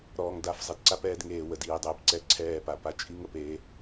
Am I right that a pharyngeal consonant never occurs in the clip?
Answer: yes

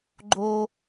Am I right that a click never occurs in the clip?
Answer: no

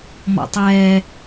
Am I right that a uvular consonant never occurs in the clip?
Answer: yes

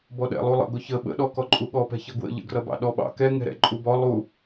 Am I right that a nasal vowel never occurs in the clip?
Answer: yes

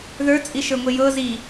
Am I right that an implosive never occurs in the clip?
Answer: yes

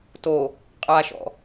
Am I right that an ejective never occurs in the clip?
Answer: no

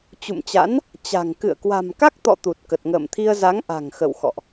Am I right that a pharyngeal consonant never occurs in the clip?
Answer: yes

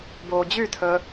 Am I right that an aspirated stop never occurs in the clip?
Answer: no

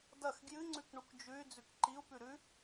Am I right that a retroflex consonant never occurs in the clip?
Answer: no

